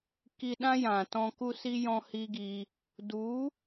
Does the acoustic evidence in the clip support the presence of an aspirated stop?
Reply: no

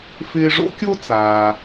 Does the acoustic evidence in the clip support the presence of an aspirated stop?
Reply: no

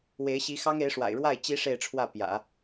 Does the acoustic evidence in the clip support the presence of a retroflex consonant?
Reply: yes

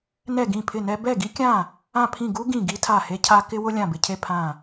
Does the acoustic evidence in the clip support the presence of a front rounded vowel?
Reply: no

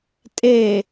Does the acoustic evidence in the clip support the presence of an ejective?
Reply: yes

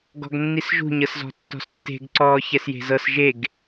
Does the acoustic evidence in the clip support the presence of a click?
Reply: yes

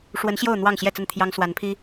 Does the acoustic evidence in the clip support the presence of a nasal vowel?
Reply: no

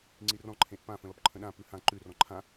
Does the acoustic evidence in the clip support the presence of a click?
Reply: yes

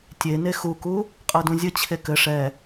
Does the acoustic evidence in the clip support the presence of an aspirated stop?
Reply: yes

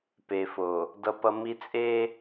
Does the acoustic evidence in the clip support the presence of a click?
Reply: no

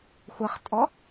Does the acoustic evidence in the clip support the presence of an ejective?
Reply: yes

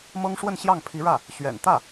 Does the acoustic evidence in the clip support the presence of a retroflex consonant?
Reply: yes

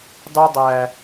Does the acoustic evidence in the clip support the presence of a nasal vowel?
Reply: no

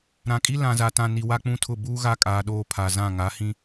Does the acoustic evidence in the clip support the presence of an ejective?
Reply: yes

